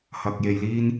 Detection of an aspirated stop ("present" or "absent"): absent